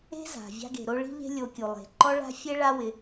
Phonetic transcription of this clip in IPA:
e̤˦ z a̤˨ vʲ a̤˧ ɡ e̤˨ ɾ o˧ ɭ i̤˦ ʎ e̤˦ lʲ o˧ kʲ u˨ lˠ e̤˨ ǃ ɔ˦ ɭ a̤˦ fʲ e˦ ɭ a˦ w ɪ˧

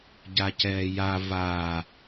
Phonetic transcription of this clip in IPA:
ɟ a c ɛː j a v a

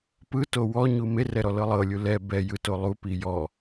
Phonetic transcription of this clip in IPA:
p ɯ t o w ɔ ɲ u m e r ɛ ɾ ɔ l ɤ lˠ ɤ lʲ u l ɛ b ɛ j ɯ t o lˠ u p i j ɔ

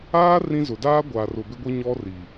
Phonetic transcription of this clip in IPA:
aː˦ r ĩ˦ z ʊ˨ d aː˦ ɡʷ aː˨ r ʊ˨ b ɪ˦ ɡʷ i˦ ɲ ɔ˦ r i˨

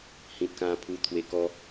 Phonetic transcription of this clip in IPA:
h ĩ˨ t̚ k ã˧ pʰ u˧ t̪ʰ w e˧ k ɔ˧

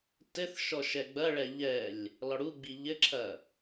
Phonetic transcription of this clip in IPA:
t ɘ θ ʃ ɔ ʃ ɛ ɡ͡b ɐ ɭ ɛ ʎ ɛ lʲ | l ɔ ɽ u ɡ͡b i ʎ ɘ ǁʰ ɐ

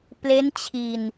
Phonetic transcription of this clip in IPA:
p l e˦˥ n t͡ɕʰ i˧ n

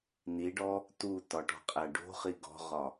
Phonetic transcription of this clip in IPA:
n i ɖ ɔ | t u t ɒ ʈ ɔ̤ qʼ æ ɖ o̤ χ i ɡ ɔ̤ ʁ ɒ

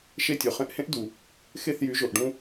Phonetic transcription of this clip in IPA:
ʃ e˥˩ tʲ o˩ χ ẽ˧ ʔ h ẽ˥ ʔ d u˩ | x e˥˩ θ j y˩˥ ʒ o˩ ʔ ɖ ũ˥

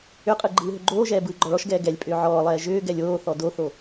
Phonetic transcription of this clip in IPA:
ʏ qʼ ɯ ɡ͡ǃ ɯː ɦ ʏ ɡ͡ǃ oː ʒ ɛː b ɯː ɡ͡ǃ ɔ ɭ ɔ ʃ ɡ ɛː ɡ ɛ lʲ pʼ ʏː ʕ ɔː lˠ ɛː ʒ ʏː ɡ ɛ lʲ oː θ ɔ d o θ o

